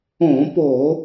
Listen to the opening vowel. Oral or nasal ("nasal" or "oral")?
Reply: nasal